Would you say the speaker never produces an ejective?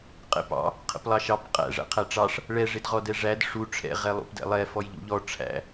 no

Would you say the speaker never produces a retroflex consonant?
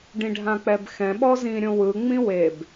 no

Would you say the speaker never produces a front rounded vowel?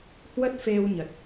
yes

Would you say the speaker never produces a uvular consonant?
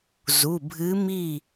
yes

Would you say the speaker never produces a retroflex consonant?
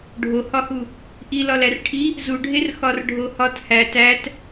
no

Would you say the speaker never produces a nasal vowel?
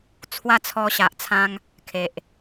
no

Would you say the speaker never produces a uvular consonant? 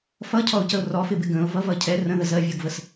yes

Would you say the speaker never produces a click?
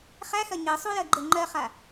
no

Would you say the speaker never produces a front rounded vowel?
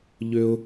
no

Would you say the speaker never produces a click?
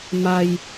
yes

